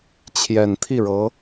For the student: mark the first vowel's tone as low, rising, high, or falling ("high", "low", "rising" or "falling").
low